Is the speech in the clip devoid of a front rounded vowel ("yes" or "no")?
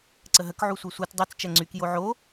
no